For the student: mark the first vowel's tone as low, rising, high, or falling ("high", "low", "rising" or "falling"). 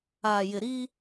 low